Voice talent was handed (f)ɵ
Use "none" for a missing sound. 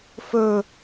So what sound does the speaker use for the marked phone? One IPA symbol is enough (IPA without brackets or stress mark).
f